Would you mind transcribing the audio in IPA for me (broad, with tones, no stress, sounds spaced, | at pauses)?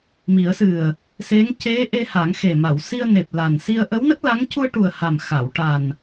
m i˨˩˦ ə̯ s ɨ˨˩ ə̯ | s e˧˥ ŋ c e˧˥ ʔ e˧ h a˨˩˦ ŋ x e˨˩ m a˨˩˨ w s i˧ ə̯ n e˨˩ p̚ l a˨˩ n s i˧ ə̯ ʔ ə˧˥ w n ə˦˥ k̚ l a˧˥ ŋ c u˧ ə̯ ʈ u˨˩ ə̯ h a˨˩ m x a˨˩˨ w ʈ a˨˩ n